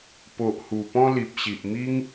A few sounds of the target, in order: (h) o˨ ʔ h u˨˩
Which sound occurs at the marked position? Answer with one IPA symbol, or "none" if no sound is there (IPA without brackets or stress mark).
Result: p